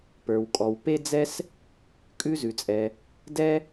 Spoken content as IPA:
pə˞˩wkʼɔ˩w pe˥d͡zɛ˥s | kʼʉ˥zʉ˩t͡sʼɛ˩ | dɛ˥

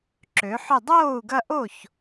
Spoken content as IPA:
ǁø˩˥ħʏ˥˨ dˤoː˥˨u̯ɡɐ˦ʔo˥˨ç

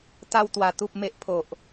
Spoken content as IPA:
t̪a˧wt̪wa˨˩ t̪u˨p̚me˨ʔpʰo˨ʔ

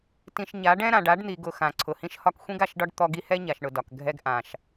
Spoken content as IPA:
tĩ˨ʃɲa˨˦ ɖɛ̃˦ɾã˨ɖ a˨˦ɖn̪i˨ɡʊ˨ xã˨ǀʰʊ˨hĩ˦ʃhɒ˦k xʷĩ˦ɡa˨ʃɖɒ˦ɖ t̪ɔ˦ɡi˦ hɛ˦ɲa˨ʃɳʊ˨ dɒ˨kɡʱɛ˦ɡ ʔã˨ʃ

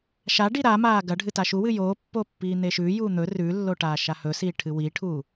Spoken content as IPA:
ʃaɖi ɾa maːɡɐɖʱɨ taʃuwɨ joːpːoː pːiːn̪eʃʉːjuː n̪ɵ rʉlːo ʈaːʃahɵsiː ʈʰɨwiʈʰuː

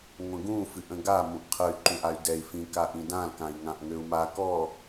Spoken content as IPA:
ŋʷə̃ɡũ fɨʔə̃ɡa mũʔqʰəy̯ ǃũʔay̯dɛi̯ fĩ kaʔĩdãl kãi̯ŋãʔŋøu̯ma kɔ

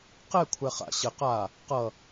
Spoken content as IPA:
qɛ kʷʰɛχa̰ ɕɘ qa | qʌ

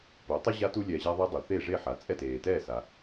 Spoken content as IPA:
po˩˥tˤe˥ ʑa˥tu˥ lʲɛː˧ʑa˥ðˤe˥ dˤu˩θe˥˩ ʐe˥˩ħa˩ t͡sʼɛ˥˩teː˩tɛː˥˩sa˩

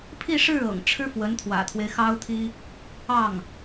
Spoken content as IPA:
pʰi˥˧ʂɻ̩˥˩ ɤ̰˨˩ŋʈ͡ʂʰɻ̩˥ fwə˧˥nt̪ʰwä̰˨˩t̪ʰwe˦ɪ̯ xɑ˥ʊ̯t̪ʰi˥ | ɑ˥˩ŋ

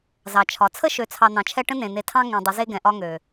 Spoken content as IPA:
zɑ˨t͡ʃʰɒ˨ t͡sʰə˦ʃø˨t͡sʰɑ˨ n̪ɑ̃˨t͡ʃʰɛ˦ ʈə̃˦n̪ẽ˨ n̪e˨tʰɑ̃˦ ŋẽ˨dˤə˨˦ze˦ ɡɛ̃˨ʔɒ˦ ŋø˨

